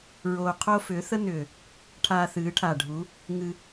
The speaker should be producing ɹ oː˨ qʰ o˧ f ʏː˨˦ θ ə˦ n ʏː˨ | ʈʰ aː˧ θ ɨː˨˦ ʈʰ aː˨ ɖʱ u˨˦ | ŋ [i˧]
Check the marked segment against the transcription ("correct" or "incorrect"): incorrect